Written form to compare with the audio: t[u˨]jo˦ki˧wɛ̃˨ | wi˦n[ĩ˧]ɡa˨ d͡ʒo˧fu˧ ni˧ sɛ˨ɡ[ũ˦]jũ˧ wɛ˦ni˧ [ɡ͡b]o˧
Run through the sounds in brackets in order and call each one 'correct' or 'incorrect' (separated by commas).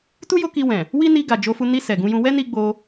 incorrect, incorrect, incorrect, correct